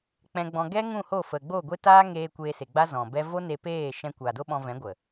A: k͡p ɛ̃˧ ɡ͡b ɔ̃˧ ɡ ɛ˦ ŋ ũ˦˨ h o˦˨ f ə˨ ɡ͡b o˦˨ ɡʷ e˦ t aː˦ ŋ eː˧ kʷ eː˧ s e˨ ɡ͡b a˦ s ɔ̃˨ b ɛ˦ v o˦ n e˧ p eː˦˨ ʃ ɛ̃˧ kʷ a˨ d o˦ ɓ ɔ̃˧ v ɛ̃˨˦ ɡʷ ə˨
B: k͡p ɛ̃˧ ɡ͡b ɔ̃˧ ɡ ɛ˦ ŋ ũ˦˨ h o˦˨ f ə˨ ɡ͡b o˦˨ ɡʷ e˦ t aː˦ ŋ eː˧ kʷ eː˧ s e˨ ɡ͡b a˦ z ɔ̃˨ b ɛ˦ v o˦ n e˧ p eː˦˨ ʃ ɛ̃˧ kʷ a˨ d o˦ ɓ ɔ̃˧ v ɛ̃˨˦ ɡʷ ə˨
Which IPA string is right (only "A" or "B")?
B